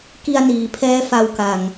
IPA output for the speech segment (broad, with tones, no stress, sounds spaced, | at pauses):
k i˧ a̯ n iː˩˦ pʰ ɛː˦˥ f a˧ w k a˨˩ ŋ